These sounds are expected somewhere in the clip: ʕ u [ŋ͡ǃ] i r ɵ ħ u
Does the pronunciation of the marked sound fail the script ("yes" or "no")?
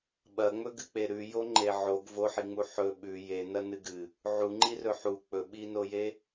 no